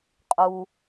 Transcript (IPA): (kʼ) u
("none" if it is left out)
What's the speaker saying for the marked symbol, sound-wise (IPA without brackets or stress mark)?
qʼ